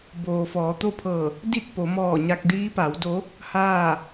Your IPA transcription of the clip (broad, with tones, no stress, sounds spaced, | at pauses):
b oː˩ f ɔː˩˧ t̪ o˥˨ pʰ ɤː˧˩ | d i˥˨ t̚ p o˩˧ m ɔː˧˩ ɲ a˧ k̚ d iː˧˥ p a˩˧ w d o˧˥ | h aː˥˨